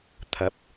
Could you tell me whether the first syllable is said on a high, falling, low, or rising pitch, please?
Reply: rising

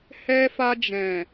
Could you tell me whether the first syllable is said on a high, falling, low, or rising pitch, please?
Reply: high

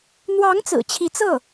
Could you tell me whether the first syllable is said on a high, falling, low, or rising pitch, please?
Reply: rising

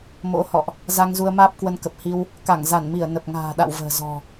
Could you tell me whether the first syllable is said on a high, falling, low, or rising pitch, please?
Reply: rising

